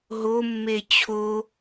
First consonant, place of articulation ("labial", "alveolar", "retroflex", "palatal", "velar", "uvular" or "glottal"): glottal